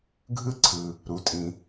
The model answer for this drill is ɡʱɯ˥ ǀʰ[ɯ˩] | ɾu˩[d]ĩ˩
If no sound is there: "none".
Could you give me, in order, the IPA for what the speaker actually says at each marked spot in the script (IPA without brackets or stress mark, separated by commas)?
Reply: ɯ˩, tʼ